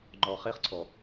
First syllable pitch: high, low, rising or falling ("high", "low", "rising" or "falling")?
low